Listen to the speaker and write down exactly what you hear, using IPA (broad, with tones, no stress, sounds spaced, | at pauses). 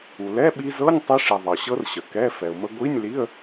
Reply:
u˩ l ɛ˧˥˧ ɓ i˧ z ɤ˧˥˧ nʲ tˤ i˧ ʂ i˩ ðˤ ɤ˩ ɕ ɤ˧ r ɕ ə˩ k ɛ˧˥˧ f ɛ˩ ʊ̯ m ə˧ ɡʷ i˧˥˧ nʲ l i˧˥˧ ə̯